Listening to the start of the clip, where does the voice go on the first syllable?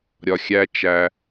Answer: low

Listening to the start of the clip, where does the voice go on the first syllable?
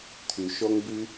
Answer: low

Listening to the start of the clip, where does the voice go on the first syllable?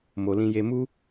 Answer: low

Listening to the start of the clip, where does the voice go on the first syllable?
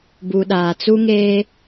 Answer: low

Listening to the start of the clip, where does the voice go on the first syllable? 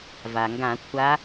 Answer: low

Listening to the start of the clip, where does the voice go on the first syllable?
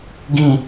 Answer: falling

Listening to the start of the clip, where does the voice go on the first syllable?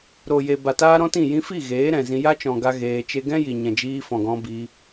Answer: low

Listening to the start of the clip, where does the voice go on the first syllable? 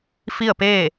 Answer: falling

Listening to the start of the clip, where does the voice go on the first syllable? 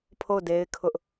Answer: falling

